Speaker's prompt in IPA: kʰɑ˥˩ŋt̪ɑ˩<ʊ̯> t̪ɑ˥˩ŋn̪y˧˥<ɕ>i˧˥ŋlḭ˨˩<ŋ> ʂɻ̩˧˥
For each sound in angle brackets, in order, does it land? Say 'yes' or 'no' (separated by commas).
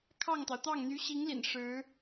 yes, yes, no